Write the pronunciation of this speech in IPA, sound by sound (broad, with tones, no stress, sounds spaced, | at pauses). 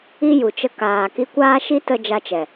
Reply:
i˦ j u˨ t͡ʃ ə˧ k aː˨ k i˧ kʷ aː˦ ʃ i˦ t ə˦ d͡ʒ a˦ t͡ʃ ɛ˨